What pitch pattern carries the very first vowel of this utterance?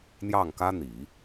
falling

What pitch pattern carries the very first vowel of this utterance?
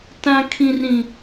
high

